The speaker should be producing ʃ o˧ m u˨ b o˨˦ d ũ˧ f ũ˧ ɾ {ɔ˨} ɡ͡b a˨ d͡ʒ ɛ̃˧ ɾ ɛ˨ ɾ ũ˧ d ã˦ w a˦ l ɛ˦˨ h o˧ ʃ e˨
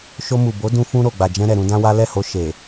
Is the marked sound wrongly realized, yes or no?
yes